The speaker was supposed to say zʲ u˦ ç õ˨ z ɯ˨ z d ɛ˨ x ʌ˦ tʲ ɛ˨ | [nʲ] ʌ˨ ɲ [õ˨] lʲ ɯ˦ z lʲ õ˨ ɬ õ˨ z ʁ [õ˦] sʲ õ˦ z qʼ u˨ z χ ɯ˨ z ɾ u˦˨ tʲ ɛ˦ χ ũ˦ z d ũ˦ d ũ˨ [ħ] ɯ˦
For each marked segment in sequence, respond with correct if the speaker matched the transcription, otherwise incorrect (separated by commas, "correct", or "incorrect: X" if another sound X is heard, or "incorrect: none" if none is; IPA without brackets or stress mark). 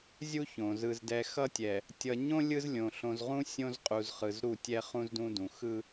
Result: incorrect: tʲ, incorrect: õ˦, incorrect: ũ˦, incorrect: x